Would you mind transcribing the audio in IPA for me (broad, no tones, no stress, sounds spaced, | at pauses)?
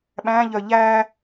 ɓ æ̃ ʎ œ ʎ æ